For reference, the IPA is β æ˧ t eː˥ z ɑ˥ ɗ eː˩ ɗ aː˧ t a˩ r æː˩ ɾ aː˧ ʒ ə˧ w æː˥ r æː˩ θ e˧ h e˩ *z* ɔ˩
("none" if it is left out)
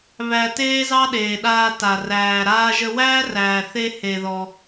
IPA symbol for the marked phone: ð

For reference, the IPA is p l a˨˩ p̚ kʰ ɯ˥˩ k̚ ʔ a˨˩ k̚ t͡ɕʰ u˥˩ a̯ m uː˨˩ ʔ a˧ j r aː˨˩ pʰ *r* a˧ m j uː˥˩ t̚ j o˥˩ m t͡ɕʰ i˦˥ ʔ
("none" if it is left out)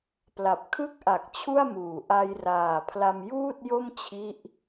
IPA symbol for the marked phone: l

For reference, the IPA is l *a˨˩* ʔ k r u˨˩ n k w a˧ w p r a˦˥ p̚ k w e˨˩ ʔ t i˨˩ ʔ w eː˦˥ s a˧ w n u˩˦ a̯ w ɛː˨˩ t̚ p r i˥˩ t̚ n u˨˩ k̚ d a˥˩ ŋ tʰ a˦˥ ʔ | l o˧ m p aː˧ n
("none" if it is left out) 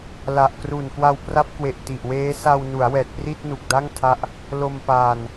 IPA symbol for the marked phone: a˨˩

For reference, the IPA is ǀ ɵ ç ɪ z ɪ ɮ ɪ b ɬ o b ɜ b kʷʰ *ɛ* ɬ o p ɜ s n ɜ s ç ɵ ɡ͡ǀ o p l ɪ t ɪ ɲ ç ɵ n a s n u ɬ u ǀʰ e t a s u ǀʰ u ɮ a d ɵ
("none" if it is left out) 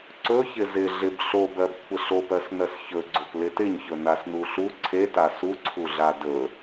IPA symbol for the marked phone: ɪ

